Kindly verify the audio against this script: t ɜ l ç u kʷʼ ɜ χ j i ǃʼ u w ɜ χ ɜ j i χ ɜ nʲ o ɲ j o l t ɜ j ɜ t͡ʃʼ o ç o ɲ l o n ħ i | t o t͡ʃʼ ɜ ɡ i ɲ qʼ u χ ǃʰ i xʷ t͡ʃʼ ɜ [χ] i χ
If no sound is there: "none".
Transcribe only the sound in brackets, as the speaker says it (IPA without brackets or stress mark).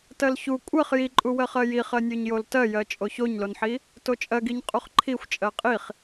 qʼ